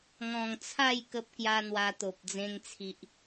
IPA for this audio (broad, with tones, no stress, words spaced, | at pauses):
ŋɔ̃˨˩ŋt͡sʰa˥˧j kə˦p̚kja˦n̪wa˧t̪o˨p̚ d͡zẽ˧ŋt͡sʰi˨ʔ